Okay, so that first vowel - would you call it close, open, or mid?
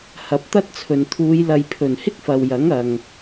open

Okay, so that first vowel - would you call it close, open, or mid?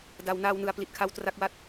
open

